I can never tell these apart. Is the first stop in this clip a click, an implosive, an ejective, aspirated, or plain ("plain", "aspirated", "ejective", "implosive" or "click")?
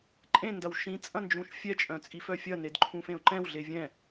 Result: click